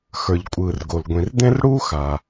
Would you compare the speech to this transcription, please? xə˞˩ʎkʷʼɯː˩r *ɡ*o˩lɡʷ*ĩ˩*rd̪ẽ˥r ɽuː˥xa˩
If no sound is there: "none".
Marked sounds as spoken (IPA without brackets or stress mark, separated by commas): ɡ, ĩ˩